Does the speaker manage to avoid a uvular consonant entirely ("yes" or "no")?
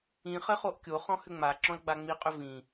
no